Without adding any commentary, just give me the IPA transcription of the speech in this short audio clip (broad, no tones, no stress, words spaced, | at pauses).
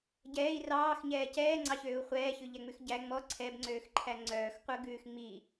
ɟɛːi̯ rɑːxɲɛː cɛːŋ͡ǀɑçøːu̯ χʷɛːçʉʎæŋ͡mʉx ɟæ ŋ͡mɔ ǀʰɛbŋ͡ǀøːxǃʰæ ŋ͡ǀœːxqʷœɡʉːx ŋ͡mi